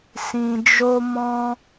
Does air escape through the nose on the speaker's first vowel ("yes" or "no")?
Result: yes